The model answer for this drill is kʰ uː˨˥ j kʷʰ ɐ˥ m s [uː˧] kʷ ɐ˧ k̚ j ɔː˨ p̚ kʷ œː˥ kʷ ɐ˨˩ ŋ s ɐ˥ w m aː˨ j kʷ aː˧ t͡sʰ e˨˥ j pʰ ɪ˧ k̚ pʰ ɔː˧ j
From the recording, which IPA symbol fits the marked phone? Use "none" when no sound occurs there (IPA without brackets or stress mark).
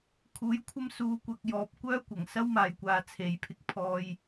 uː˧